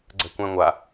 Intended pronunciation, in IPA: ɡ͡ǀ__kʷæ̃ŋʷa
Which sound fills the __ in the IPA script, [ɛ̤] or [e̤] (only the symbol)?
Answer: ɛ̤